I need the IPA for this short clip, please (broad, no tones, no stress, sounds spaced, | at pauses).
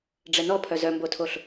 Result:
ɖ͡ʐ ɛ n ɔ pʰ œ z œ m b o tʰ o ɬ